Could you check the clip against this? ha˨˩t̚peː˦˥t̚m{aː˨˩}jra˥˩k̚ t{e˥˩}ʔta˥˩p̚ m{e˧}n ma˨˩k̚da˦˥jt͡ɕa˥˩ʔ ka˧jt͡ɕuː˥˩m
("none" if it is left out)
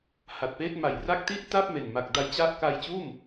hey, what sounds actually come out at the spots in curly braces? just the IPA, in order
a˨˩, i˥˩, e˨˩

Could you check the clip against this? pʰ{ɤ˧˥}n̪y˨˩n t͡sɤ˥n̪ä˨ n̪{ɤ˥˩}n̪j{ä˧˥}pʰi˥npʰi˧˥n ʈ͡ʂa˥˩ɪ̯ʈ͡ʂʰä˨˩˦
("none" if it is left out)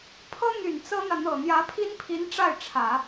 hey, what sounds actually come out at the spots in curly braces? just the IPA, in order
ɤ˥, ɤ˨˩, ä˧˥

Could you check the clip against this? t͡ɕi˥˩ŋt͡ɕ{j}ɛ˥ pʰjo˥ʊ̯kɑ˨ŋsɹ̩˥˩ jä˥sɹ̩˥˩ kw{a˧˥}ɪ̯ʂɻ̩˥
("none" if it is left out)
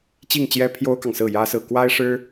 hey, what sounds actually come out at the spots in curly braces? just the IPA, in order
j, a˥

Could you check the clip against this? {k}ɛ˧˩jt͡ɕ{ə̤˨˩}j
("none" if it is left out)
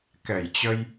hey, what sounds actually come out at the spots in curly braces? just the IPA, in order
k, ə˧

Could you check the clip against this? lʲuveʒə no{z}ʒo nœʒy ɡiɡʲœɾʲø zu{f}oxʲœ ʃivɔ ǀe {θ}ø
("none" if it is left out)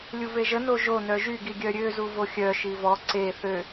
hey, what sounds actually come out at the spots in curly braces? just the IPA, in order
none, v, θ

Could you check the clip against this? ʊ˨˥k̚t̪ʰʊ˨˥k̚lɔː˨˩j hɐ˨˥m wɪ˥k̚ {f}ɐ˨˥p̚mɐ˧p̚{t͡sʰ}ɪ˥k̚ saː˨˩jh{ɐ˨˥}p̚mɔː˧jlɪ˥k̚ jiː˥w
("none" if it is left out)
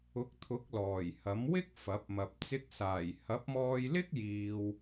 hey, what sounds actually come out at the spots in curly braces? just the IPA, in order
f, t͡s, ɐ˨˥

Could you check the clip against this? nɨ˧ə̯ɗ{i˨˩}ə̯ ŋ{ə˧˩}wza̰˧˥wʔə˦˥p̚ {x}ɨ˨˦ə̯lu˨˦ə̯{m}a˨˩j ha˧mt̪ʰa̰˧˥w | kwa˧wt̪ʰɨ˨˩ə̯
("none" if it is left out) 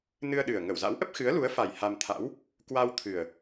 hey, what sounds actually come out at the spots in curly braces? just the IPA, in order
ɨ˨˩, ə˧˩, x, f

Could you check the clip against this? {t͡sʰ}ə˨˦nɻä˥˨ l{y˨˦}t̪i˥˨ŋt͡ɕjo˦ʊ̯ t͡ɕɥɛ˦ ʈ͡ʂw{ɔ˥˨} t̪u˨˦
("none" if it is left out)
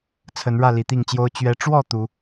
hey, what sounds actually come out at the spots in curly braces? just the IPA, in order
t͡sʰ, i˨˦, ɔ˥˨

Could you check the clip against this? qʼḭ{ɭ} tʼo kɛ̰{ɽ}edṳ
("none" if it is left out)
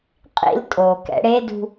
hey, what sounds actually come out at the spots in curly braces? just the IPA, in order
l, ɽ

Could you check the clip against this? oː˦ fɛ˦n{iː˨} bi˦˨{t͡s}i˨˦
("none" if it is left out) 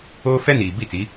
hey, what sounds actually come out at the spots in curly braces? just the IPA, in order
iː˨, t͡s

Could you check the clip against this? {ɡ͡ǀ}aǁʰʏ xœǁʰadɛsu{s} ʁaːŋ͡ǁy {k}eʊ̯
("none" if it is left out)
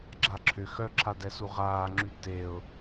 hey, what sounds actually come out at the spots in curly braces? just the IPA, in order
ɡ͡ǁ, none, t

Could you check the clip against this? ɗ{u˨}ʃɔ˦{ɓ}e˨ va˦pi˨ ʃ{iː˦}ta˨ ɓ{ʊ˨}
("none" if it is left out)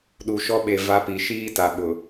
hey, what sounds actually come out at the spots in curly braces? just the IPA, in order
u˨, ɓ, iː˦, ʊ˨

